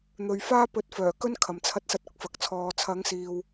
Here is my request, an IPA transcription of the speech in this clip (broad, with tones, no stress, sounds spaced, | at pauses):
n̪ ɵ˨ ɥ f aː˥ p ɵ˨˥ t̚ f œː˨˩ k ɵ˥ n kʰ ɐ˨˩ m t͡sʰ ɐ˧ t̚ s ɐ˧ t̚ ʊ˧ k̚ f ɐ˨ k̚ t͡sʰ ɔː˨ t͡sʰ ɐ˨˧ ŋ s iː˨ w